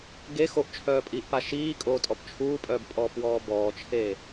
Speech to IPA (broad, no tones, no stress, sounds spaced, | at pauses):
ɡ e x o ʔ t͡ʃʰ œː pʼ iː ʔ p a ʃ iː kʼ oː tʼ ɔ p t͡ʃʰ uː pʼ œː b pʼ ɔː p w ɔː b ɔː t͡ʃʰ e